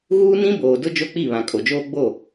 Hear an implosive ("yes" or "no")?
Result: no